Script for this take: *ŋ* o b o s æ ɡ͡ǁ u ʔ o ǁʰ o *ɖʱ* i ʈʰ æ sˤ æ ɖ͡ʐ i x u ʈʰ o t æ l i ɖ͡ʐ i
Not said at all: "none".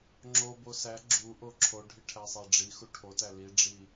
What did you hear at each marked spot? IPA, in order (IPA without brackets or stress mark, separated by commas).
ŋ͡ǁ, ɖʱ